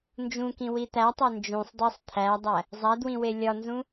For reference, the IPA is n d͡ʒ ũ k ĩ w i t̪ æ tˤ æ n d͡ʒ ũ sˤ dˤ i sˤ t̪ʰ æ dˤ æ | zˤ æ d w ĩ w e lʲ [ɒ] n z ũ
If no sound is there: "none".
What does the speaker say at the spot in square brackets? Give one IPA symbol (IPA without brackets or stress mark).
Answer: ɒ